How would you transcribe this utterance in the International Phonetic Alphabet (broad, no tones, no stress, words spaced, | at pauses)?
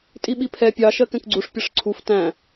tʼiɓipʰɛ pʲɑ ʃɜkɛ̃kɡ͡ǀuʂ pʲʌʂǀʰuf tæ̃